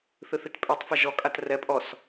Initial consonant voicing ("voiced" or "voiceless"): voiceless